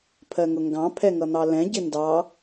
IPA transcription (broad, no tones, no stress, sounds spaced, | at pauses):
pʰ ɜ ŋ ʊ ŋ ɡ ɑ̃ pʰ ɛ ŋ ʌ n̪ ɑ l ɛ̃ ɟ ɪ n d ɑ